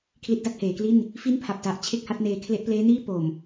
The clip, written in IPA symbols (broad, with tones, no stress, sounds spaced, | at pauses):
kʰ l i˦˥ t̚ d a˥˩ k̚ h eː˩˦ k l i˥˩ n | f i˥˩ n pʰ a˨˩ p̚ t a˨˩ ʔ t͡ɕʰ e˥˩ k̚ h a˦˥ t̚ n eː˧ kʰ l e˦˥ ʔ p l eː˦˥ n iː˥˩ p o˨˩ m